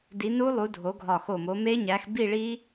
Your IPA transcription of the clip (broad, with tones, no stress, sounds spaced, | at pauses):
d i˨˦ n u˦˥ lˠ u˨˦ dʱ o˨˦ ɡʱ ɒ˧˩ x o˧˩ m o˨˦ m e˦˥ ɲ æ˨˦ x b i˥˧ ɭ i˦˥